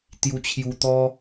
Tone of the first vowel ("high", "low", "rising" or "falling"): high